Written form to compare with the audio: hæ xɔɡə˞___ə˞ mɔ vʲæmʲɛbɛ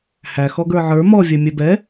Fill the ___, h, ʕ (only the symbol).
ʕ